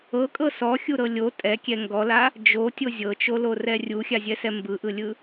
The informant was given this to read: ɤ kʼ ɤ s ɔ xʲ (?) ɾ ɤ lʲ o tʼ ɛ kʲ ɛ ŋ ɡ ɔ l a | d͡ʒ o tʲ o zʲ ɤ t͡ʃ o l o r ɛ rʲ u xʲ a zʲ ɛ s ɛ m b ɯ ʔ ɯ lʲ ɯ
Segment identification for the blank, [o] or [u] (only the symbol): u